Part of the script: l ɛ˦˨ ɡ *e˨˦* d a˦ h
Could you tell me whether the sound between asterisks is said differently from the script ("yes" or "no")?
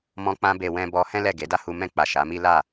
no